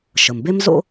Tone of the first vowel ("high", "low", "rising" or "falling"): low